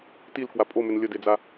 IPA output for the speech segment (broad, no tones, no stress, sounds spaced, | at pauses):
t i l k w a pʼ o m ʏ n lʲ ə d e d͡z a